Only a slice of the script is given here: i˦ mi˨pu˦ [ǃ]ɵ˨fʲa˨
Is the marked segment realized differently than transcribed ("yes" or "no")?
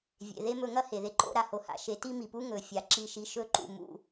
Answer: yes